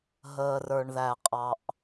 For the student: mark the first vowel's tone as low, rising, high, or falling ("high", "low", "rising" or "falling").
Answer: low